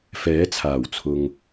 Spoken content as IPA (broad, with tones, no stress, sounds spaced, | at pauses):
f ɛː˨˥ t͡sʰ aː˨˩ w t͡sʰ ʊ˨ ŋ